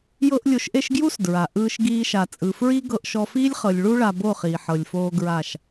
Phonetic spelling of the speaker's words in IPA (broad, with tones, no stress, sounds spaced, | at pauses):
j ɤ˦ ʔ lʲ o˧ ʃ ʔ e˦ ʃ ɡ j u˦ s d ɹ a˨ ʔ ɯː˧ ʃ ɡ iː˧ ʃ a˨ t͡sʼ ɯ˨ f ɹ i˦ ɡ ɤ˧ ʔ ʃ ɔ˧ f iː˦ lʲ χ ɤ˨ lʲ ɭ u˦ ɭ a˧ b o˦˨ χ iː˨ ħ ɤ˨ lʲ f oː˧ ɡ ɹ a˦˨ ʃ